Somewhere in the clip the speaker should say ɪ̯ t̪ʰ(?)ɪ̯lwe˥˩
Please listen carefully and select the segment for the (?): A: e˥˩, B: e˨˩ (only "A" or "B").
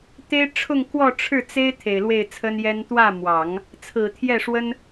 B